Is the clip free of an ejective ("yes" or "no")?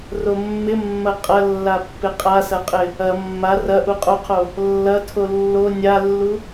no